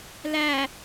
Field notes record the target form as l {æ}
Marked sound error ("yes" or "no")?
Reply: no